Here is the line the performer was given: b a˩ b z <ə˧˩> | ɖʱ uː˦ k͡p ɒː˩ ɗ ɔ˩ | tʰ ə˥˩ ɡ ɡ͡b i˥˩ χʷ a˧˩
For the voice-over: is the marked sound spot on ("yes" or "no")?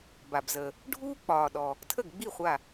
no